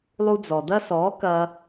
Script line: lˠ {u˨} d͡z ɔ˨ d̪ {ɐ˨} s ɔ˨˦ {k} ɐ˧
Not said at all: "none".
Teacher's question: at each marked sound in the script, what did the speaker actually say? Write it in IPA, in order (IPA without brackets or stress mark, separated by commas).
u˧, ɐ˦, k